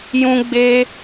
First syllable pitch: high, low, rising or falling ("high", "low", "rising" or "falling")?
high